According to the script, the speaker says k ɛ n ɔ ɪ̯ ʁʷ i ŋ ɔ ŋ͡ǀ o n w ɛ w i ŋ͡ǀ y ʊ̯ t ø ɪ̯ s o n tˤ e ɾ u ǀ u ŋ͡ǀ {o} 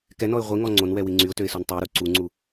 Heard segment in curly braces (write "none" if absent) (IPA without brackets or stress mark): u